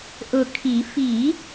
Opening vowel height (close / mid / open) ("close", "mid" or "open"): close